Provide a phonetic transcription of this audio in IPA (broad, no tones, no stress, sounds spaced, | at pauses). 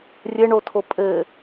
rʲ ɘ ɳ o tʰ o pʼ ɘ